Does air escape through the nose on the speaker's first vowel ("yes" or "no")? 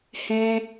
yes